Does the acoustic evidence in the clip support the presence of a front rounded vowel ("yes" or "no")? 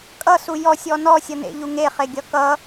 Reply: no